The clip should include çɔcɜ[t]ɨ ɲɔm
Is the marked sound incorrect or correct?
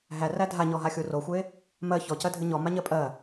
incorrect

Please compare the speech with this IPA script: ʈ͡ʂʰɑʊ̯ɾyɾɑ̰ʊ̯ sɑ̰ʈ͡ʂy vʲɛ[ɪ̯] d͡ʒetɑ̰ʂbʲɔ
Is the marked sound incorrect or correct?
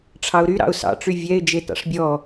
correct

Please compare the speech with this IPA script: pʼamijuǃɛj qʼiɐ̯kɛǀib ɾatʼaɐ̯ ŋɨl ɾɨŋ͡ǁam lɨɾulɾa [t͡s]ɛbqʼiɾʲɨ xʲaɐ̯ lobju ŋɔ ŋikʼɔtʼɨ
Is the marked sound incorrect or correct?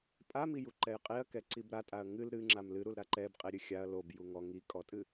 incorrect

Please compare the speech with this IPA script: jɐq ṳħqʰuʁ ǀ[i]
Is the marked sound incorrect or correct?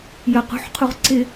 incorrect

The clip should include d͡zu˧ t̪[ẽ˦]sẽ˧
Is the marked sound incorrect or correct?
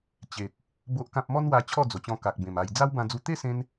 incorrect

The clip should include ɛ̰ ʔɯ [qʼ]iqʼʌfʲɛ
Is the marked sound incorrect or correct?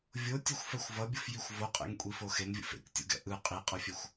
correct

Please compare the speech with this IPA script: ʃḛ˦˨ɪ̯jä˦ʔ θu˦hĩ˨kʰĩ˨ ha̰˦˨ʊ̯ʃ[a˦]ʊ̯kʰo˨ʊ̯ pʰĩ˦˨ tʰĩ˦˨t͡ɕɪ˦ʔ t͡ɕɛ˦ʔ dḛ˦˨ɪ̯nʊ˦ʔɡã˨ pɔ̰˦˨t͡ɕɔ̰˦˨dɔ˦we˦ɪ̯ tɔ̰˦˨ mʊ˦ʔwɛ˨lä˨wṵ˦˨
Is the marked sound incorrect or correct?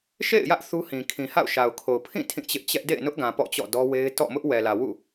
incorrect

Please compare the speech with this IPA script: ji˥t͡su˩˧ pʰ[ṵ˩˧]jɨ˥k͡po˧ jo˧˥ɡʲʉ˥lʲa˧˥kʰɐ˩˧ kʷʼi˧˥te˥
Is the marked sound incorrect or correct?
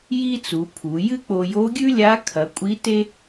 incorrect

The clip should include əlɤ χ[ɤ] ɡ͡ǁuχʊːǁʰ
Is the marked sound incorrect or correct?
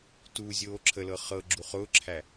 correct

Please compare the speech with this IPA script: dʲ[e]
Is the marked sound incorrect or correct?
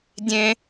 incorrect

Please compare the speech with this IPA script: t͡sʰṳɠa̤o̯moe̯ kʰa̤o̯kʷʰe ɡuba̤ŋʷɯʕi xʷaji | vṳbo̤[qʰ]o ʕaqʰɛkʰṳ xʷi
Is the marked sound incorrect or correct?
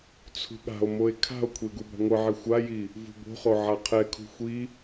incorrect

